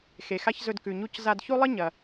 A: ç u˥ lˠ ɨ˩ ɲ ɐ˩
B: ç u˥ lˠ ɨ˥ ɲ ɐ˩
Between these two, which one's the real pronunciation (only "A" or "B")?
B